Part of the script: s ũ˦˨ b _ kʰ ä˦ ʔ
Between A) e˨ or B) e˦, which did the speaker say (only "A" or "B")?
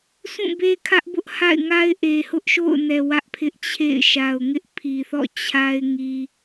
B